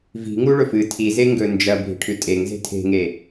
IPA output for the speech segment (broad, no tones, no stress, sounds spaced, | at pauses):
v i̤ ŋ u ɭ ɵ f ɨ tʰ i z e ŋ ɡ ɵ n d͡ʒ ɐ bʱ i̤ ʈʰ ʉ tʼ e ŋ z e̤ tʰ e̤ ŋ e